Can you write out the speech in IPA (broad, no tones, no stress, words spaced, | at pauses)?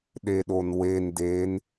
ɗeɗonwe nden